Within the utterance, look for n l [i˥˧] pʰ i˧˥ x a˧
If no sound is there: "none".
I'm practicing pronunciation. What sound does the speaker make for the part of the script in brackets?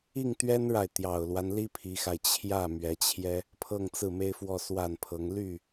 i˥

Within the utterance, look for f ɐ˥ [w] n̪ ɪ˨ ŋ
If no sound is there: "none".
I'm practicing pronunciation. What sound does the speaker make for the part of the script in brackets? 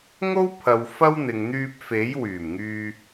w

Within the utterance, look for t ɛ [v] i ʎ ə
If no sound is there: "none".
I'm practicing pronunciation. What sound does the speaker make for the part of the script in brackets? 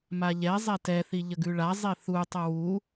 θ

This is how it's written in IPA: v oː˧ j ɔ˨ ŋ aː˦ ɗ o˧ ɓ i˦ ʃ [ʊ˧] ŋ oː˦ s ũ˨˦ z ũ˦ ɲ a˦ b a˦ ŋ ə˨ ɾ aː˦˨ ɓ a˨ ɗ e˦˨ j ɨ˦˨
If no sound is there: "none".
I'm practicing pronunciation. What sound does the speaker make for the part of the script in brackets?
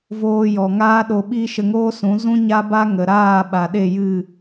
ə˧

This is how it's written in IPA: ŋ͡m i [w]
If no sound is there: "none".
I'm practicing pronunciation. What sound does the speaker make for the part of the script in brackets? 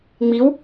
w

